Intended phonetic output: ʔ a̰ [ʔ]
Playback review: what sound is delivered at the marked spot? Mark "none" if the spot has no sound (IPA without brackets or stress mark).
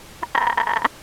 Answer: none